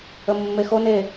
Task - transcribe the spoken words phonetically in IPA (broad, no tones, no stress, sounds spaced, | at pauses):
ə mː e x o n e